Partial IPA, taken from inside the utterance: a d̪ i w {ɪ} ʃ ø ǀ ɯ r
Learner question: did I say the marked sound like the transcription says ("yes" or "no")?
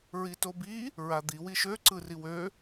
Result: no